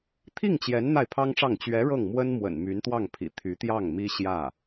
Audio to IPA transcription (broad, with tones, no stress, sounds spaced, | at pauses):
t̪ʰ i˥˩ ŋ t͡ɕ j ɛ˧˥ n n̪ a˥˩ ɪ̯ pʰ ɑ˥ ŋ ʈ͡ʂ ɑ˥˩ ŋ t͡ɕ ɥ ɛ˧˥ ɻ ɤ˥˩ ŋ m w ə˥ n m w ə̰˨˩ n m y˧˥ n t̪ w ɑ˥˩ ŋ pʰ ḭ˨˩ t̪ʰ y˧˥ t̪ j ɑ˥˩ ŋ m i˥ ɕ j ä˥˩